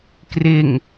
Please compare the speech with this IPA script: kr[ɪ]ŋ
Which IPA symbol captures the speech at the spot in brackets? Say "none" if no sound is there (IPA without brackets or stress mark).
ɪ